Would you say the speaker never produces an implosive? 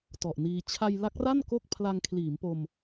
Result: yes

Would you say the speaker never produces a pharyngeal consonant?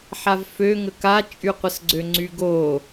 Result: no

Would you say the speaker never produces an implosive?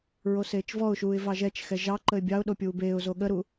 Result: no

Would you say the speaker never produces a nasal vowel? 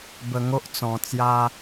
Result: no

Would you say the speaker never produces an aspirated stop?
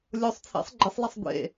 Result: no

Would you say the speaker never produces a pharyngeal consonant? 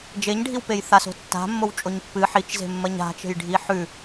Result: no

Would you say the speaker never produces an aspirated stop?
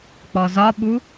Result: yes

